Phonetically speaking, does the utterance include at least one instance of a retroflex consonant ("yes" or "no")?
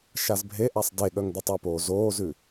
no